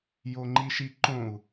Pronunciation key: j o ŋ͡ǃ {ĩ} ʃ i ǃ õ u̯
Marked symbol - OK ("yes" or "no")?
no